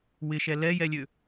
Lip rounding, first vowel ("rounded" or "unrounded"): unrounded